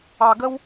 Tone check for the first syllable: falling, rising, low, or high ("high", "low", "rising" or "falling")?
low